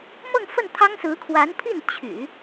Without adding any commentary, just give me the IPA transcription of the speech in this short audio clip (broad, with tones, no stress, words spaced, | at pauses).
mɤ˥˧ŋfə˥˩nt̪ʰɑ˥ŋsɹ̩˧˥ kʰwa˧˥npʰi˥˩n t͡ɕʰy̰˨˩˦